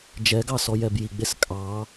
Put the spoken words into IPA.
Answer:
d͡ʒ ɛ ɡ ɑ s ɔ j ɛ b j i ɡ͡b e s kʼ ɑ

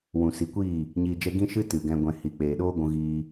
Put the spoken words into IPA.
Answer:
w ũ˨ s i˨˦ kʷ iː˦˨ | ɲ iː˧ d͡ʒ ɛ˦ ɡ ĩ˦ ʃ ɨ˦ t ɨ˨ ɡ ɛ̃˧ ɡʷ ɛ̃˧ h i˨ k͡p eː˨ ɗ oː˦ ɡʷ ũ˧ ɣ iː˧

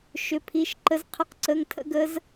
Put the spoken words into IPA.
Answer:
ʃ ʏ˧˥˧ pʰ i˧˥˧ ʃ ǃ ə˦˥ z qʰ ə˦˥ q ǀ ə˧˥˧ ŋ tʰ ə̰˦˥ ɡ ə˦˥ z

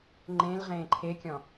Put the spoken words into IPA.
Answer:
ŋ͡ǃ ẽ l ʁ ẽː ǃʰ e kʲ ɔ̃

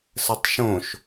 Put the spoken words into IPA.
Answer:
s ə tˤ ʃ õ ʃ

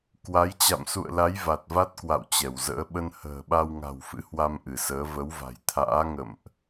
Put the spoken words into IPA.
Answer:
k w a˨˦ j t͡ɕ a̰˧˨ m s ṵ˧˨ ə̯ l a˨˦ j v a˨˩ t̚ v a˦˥ t̚ k w a̰˧˨ w t͡ɕ ɛ˧˩ w z ə̰ː˧˥ ɓ ə˧ n h ə̤ː˨˩ ɓ a˧ w ŋ a̤˨˩ w f ɨ̰˧˥ h w a˧ m ʔ ɨ˧˩ s əː˨˦ v ə˨˦ w v a̤˨˩ j t̪ʰ a̰ː˧˥ ŋ ə̰˧˨ m ʔ

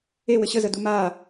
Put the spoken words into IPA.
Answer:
e w ɘ ɕ ə z ə d u m a

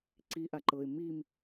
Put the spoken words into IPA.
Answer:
ǀ i ʔ a ǃ ɤ ɪ̯ m i m

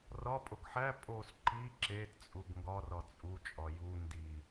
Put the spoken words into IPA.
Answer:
r ɒ pʼ o ɡ ħ æ pʼ o s ǃ i ǁ e t t͡sʼ u ɡ ŋ ɡ ɒ r ɒ t͡sʼ u t͡ʃʼ ɒ j u n d i

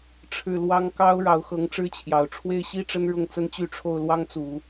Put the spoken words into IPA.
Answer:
ʈ͡ʂʰ ɻ̩˥˩ l w ɑ˥ ŋ k ɑ˥ ʊ̯ ɻ ɑ˧˥ ʊ̯ x ɤ˧˥ ŋ ʈ͡ʂ ɻ̩˥ t͡ɕʰ j ɑ˨˩ ʊ̯ ʈ͡ʂʰ w e˥ ɪ̯ ɕ i˥ ʈ͡ʂ ə˥ n ɻ ʊ˥˩ ŋ t͡s ə˥ n t͡ɕ y˥˧ ʈ͡ʂʰ o˥˩ ʊ̯ l w ɑ˥ ŋ t͡s u˨˩˦

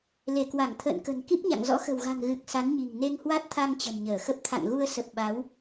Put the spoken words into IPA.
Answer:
l e˧˩ k w a˧˩ ŋ t̪ʰ ə̰ː˧˨ n k ə̤˨˩ n k i˦˥ p̚ ɲ a̰˧˨ ŋ z ɔ̰˧˥ x ə̤˨˩ w ɣ a̤˨˩ ŋ ɣ ɨ˨˩ k̚ s a˨˦ n ɲ i̤˨˩ ŋ n e˧ ŋ h w a˦˥ t̚ t̪ʰ a˧ ŋ t͡ɕ ə̤˨˩ n ɲ əː˧˩ x ə˦˥ p̚ t̪ʰ a̰˧˨ ŋ ɣ u˧ ə̯ s ə˨˩ p̚ ɓ a˨˦ w

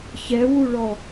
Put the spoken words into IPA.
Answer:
ç ɛ w u ɭ ɔ

